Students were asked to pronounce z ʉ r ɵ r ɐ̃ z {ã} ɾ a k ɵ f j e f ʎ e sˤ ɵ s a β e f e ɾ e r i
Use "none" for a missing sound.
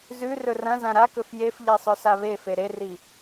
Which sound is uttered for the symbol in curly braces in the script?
ã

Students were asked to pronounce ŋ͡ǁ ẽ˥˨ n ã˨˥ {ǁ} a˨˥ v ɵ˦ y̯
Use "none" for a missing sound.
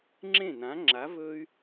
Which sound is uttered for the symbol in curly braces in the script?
ŋ͡ǁ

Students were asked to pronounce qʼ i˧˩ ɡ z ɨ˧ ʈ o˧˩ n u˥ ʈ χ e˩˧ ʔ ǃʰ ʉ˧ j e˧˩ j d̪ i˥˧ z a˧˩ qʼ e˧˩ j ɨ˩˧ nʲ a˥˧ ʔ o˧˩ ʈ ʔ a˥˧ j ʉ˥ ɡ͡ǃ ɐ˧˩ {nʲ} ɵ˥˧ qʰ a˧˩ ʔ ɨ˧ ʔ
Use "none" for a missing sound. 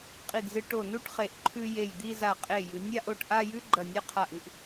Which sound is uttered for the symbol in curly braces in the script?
nʲ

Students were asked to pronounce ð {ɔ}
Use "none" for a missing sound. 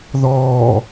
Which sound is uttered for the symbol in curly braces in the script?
ɔː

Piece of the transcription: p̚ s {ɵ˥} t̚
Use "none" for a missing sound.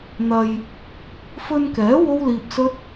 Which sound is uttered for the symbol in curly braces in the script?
ɵ˥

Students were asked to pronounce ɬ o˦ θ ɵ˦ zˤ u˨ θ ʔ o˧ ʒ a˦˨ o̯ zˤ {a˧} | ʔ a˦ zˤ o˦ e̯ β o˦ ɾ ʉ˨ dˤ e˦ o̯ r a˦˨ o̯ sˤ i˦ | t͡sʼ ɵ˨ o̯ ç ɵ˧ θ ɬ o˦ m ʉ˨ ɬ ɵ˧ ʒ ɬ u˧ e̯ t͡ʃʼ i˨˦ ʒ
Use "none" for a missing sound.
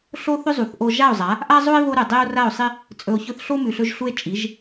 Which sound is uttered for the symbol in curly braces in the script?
a˨˦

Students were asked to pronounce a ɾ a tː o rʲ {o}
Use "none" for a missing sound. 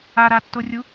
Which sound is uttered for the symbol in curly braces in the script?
u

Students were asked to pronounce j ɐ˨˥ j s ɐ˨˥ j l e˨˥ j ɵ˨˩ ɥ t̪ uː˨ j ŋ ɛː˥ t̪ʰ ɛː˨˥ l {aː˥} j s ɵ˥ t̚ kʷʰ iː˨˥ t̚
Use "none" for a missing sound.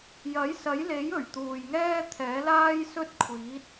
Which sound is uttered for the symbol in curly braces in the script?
aː˥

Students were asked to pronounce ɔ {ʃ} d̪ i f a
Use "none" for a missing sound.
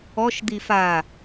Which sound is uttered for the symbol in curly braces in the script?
ʃ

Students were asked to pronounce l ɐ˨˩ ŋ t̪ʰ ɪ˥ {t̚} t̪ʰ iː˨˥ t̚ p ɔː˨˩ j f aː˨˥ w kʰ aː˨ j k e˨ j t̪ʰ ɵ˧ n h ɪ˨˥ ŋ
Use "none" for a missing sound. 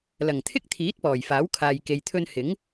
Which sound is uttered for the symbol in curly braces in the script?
k̚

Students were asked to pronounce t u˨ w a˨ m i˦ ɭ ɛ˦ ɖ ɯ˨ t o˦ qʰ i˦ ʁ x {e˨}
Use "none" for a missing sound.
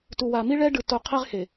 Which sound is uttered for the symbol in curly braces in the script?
e˨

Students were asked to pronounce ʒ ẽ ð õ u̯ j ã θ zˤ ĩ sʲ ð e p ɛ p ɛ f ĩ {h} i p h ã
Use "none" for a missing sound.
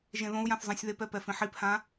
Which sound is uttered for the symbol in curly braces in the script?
ħ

